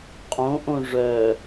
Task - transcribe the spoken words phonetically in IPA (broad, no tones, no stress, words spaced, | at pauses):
qʼõʔõ ʐœ